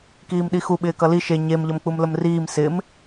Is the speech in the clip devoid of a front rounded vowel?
yes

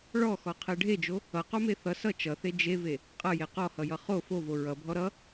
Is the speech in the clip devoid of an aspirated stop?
no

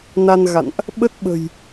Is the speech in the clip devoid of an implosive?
no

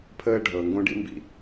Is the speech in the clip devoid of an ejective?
yes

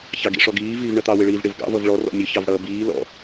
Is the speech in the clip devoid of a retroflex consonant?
no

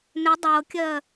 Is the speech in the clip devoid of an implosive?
yes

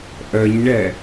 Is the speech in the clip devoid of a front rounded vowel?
no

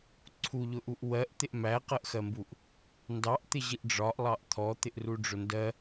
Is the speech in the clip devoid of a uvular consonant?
no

